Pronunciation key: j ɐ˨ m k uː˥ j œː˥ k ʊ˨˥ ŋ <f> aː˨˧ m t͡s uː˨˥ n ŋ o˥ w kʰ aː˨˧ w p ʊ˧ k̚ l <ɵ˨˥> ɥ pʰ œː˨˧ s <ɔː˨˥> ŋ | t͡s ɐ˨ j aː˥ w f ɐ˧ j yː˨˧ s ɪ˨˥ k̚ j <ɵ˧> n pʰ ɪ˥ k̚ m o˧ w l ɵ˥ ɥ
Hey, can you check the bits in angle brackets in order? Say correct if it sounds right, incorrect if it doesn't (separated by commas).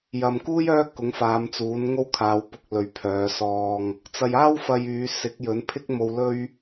correct, incorrect, incorrect, incorrect